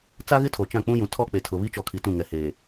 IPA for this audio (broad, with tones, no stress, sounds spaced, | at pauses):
t͡s a˦ ɣ ɪ˦ tʰ o˨ t͡ʃ ã˦˨ k͡p ũ˦ j ũ˨ tʰ ɔ˦ k͡p e˨ tʰ ʊ˨ β i˦ t͡ʃ ɔ˨ kʰ i˨ t ũ˦˨ ŋ ɛ˨ h eː˨